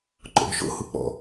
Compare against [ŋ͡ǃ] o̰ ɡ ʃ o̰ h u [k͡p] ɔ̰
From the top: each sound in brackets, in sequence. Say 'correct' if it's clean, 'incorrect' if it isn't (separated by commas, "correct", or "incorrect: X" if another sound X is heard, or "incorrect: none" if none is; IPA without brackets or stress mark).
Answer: incorrect: ǃ, correct